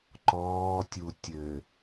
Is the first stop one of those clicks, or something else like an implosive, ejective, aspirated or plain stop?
click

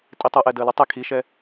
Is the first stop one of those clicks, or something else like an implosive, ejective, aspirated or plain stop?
ejective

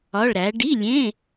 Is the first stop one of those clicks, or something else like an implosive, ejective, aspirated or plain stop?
plain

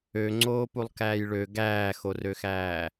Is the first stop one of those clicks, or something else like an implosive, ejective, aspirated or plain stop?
click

